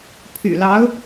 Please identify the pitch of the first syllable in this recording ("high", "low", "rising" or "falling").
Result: low